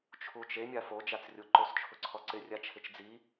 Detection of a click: present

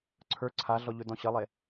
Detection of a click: present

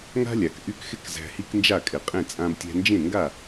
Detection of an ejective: present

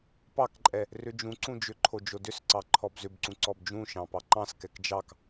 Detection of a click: present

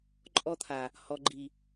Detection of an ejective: present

